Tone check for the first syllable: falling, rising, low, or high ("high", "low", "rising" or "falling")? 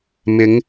rising